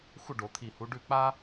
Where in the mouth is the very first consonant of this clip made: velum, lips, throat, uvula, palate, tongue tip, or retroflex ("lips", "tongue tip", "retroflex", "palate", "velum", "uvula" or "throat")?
velum